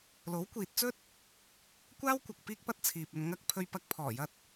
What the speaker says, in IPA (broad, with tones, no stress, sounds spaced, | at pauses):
l o˨˥ w kʷ iː˨ t̚ t͡s ɵ˥ t̚ | kʷ aː˥ w kʷ ɐ˧ k̚ p iː˥ k̚ p ɐ˥ t̚ t͡sʰ iː˨ p̚ ɵ˧ n ŋ ɐ˧ k̚ pʰ ɵ˧ ɥ p ɐ˧ k̚ pʰ ɔː˨˩ j ɐ˧ t̚